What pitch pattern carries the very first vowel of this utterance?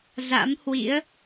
rising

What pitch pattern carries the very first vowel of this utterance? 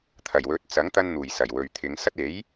low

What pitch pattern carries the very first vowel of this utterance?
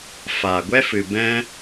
low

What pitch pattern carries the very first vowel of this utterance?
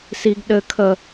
high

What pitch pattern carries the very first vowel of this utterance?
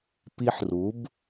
high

